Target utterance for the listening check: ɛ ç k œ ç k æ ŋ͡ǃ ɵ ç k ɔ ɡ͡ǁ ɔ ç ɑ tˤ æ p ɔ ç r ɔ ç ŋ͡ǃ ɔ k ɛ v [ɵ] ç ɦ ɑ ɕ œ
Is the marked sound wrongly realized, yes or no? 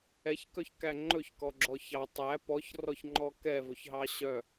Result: no